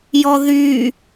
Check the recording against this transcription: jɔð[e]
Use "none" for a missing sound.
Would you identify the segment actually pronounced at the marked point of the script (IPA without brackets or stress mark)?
y